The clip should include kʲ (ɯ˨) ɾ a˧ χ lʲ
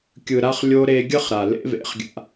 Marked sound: correct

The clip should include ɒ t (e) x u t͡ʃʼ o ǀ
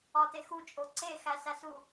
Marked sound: correct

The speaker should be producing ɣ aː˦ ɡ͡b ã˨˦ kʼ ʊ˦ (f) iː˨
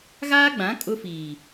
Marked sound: correct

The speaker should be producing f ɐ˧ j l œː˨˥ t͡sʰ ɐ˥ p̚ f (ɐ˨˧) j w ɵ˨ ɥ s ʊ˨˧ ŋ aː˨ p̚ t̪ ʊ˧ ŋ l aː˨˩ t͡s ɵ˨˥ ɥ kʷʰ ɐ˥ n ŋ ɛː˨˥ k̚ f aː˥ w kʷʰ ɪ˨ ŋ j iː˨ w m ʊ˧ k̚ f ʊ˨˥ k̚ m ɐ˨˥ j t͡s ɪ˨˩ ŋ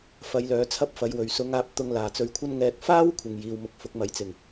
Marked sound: correct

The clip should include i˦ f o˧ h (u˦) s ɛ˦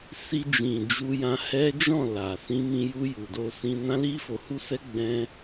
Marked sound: correct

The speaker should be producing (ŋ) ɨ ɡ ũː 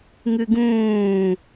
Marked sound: correct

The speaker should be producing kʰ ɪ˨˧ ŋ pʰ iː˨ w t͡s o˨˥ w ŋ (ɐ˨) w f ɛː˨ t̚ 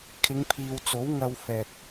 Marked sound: incorrect: ɐ˧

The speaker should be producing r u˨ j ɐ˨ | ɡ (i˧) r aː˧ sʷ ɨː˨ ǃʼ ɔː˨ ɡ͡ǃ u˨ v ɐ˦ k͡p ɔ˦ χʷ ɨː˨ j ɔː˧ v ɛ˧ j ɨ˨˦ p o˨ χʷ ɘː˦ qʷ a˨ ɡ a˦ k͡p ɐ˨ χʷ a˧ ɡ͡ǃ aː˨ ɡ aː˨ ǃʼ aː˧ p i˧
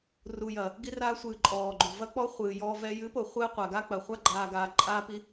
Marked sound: correct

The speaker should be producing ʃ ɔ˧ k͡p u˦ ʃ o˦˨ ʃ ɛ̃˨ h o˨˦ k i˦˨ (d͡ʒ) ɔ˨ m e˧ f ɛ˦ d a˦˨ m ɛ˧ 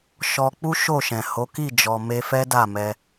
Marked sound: correct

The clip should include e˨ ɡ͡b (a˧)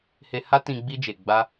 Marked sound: correct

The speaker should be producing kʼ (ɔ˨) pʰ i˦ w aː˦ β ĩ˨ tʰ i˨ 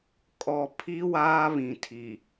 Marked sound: correct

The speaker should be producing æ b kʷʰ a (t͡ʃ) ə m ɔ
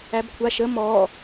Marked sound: incorrect: ʃ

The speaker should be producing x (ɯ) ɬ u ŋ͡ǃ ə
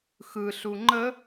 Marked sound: correct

